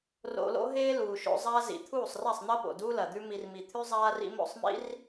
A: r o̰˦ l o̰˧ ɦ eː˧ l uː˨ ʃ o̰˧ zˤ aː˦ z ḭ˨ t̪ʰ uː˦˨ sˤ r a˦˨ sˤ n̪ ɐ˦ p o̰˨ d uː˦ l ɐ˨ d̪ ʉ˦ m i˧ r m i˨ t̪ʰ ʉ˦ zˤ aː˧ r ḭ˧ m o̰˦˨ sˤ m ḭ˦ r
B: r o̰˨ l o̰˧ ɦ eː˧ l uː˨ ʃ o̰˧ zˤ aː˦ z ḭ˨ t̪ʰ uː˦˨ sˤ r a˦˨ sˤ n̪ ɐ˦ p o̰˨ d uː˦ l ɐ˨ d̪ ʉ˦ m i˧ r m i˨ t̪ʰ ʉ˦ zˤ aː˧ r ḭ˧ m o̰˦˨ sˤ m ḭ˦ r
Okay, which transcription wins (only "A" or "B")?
B